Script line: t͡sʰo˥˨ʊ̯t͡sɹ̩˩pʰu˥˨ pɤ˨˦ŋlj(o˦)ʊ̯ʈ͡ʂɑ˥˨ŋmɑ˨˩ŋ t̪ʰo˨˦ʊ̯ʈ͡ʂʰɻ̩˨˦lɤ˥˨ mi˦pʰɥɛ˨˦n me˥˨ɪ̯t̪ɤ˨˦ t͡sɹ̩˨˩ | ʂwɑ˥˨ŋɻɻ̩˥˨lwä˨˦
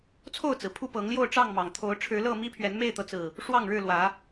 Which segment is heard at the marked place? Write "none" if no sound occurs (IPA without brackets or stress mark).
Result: o˥˨